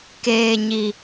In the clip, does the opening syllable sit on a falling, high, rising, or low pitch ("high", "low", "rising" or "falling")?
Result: low